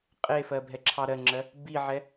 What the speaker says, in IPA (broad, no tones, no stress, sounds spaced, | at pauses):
qʼ e f ɜ bʱ ɛ ǁʰ ɑ ɾ ɜ ŋ͡ǁ ɜ | b i ʕ ɛ